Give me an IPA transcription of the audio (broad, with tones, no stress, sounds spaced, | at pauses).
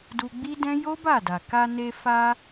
d u˧ ɡ͡b i˦ d ɛ̃˦ j o˦ b a˦˨ d a˨ k a˧ n e˧ f a˧